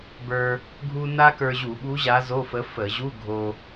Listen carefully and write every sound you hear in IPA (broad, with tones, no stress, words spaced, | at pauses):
bə˞˧ | ɡʱu˥ na˥kə˞˧ʑu˧˩˧ɓu˧˥ ʑa˧˥zo˧˥˧fə˧˥ fə˧˩˧ ʑu˧˥˧ ɡʱo˧